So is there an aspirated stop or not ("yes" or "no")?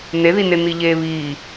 no